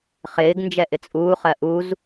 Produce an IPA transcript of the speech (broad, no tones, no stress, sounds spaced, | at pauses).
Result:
χ ɪː ɡ n d͡ʒ ɛ ʔ ɪ t͡sʼ uː χ ɜ ʔ u z